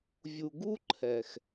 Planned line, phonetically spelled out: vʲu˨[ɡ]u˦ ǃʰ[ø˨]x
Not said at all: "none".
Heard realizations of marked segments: ɡ, ɛ˨

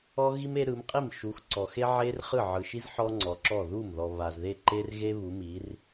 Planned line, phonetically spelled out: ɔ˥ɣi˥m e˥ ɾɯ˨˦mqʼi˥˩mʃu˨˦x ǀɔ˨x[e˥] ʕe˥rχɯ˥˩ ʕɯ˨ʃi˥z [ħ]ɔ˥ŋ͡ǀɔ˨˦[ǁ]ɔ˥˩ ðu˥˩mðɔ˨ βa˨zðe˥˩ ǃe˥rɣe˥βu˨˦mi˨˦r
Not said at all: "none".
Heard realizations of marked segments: e˥, ħ, ǁ

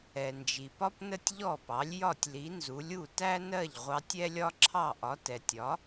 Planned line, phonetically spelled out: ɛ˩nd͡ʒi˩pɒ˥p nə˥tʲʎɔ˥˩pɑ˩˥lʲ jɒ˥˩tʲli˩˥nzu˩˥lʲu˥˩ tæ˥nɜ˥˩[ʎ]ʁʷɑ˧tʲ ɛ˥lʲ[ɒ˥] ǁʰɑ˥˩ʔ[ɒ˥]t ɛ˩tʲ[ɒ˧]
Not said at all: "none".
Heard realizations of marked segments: ʎ, ɒ˥, ɒ˩˥, ɒ˩˥

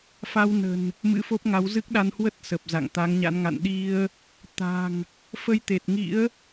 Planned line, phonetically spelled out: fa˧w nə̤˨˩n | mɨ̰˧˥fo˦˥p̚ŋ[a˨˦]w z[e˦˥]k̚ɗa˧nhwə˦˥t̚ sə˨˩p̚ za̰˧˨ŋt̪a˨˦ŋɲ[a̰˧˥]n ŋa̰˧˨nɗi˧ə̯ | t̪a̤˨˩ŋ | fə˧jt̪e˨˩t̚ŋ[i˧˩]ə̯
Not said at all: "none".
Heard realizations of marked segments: a˨˦, ɨ˦˥, a̰˧˥, ḭ˧˥

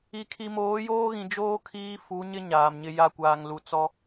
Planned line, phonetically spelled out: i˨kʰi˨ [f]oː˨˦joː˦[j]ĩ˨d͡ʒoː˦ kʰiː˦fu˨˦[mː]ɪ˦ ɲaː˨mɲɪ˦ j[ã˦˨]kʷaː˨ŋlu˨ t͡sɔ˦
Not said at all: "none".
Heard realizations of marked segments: m, ɣ, ɲ, a˦˨

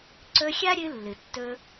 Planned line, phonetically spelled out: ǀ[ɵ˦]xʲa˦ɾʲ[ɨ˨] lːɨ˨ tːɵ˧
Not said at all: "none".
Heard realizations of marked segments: ɵ˧, ɨ˧

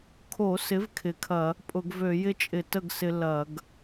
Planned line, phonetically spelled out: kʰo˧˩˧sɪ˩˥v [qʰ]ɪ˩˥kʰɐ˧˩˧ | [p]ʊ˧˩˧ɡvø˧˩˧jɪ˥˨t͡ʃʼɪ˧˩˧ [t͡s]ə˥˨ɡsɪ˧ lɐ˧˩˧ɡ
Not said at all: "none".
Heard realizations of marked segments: kʰ, pʼ, t

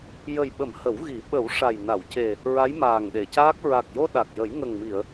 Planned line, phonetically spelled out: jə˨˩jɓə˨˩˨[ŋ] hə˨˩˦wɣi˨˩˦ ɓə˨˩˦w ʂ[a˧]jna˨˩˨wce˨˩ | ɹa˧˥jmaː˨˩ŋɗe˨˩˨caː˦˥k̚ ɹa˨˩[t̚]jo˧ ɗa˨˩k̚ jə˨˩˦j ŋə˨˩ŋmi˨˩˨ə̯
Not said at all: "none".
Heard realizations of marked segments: m, a˨˩, k̚

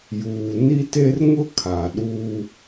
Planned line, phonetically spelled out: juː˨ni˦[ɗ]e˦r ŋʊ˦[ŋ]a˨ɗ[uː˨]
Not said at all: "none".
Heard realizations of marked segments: t, kʰ, uː˦

